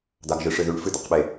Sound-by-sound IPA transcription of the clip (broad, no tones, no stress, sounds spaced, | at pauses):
d̪ a ɡ ʒ ɨ ʂ ɨ ð ʉ ɳ f ɨ d̪ ɐ q ɓ e